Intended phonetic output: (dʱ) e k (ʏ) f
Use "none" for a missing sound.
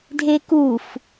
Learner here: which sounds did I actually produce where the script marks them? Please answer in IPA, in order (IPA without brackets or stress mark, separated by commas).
dʱ, u